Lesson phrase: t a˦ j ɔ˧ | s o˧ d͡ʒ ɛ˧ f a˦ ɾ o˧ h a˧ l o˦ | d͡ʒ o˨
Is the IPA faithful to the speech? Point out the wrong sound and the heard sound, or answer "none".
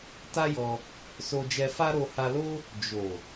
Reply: none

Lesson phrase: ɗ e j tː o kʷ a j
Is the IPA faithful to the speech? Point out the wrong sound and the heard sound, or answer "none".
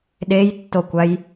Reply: none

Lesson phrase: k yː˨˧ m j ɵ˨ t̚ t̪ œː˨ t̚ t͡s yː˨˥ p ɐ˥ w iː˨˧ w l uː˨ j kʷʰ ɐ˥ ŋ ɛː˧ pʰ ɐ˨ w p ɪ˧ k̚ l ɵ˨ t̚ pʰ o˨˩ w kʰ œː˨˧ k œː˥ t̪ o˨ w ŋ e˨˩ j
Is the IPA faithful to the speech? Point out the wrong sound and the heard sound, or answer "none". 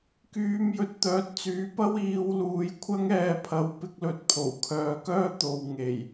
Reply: none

